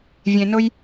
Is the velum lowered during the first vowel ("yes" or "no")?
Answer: yes